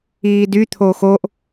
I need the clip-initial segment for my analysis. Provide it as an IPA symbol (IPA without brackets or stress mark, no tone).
iː